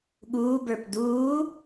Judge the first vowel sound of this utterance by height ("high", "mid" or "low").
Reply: high